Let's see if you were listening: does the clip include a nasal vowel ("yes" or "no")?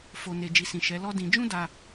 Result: yes